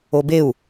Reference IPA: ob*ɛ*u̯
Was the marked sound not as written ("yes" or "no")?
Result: yes